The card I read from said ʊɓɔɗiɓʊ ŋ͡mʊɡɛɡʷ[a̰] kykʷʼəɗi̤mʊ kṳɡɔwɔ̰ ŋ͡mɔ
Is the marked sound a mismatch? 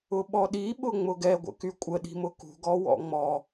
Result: yes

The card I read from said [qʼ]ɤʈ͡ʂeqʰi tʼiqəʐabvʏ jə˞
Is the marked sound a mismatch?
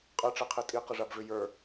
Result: no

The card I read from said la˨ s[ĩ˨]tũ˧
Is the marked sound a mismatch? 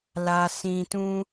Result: no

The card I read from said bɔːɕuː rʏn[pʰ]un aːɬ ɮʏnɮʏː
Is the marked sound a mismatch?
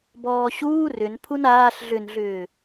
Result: no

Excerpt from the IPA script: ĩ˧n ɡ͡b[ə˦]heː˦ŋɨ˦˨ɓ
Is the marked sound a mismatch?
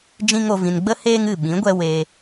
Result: no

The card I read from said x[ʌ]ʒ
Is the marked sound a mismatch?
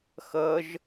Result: no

